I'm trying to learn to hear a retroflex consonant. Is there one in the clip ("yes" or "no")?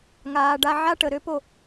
yes